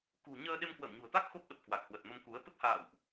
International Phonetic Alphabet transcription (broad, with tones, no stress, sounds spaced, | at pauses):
k ṳ˨˩ ɲ əː˧ ɗ e˧ m k w ə̰ː˧˨ m ɲ ṳ˨˩ ə̯ t̪ a˦˥ k̚ x o˦˥ p̚ ɗ ə˨˩ p̚ k w a˨˩ k̚ h w ə˨˩ t̚ m ə˧ m k u˨˦ ə̯ t̪ ə˦˥ p̚ h a̰ː˧˨ w ʔ